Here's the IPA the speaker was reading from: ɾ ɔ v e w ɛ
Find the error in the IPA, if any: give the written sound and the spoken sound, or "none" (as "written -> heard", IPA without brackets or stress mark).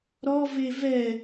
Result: w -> v